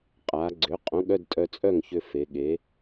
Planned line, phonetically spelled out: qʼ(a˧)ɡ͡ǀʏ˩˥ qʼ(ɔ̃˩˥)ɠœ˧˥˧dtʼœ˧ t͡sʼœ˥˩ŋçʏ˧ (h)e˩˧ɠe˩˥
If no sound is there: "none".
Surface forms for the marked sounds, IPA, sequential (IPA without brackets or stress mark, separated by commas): a˩˧, õ˩˥, f